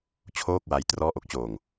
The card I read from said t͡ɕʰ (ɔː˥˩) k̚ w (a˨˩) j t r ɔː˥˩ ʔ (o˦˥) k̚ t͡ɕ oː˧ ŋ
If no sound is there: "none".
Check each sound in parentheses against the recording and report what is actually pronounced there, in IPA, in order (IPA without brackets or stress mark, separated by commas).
oː˥˩, a˦˥, o˦˥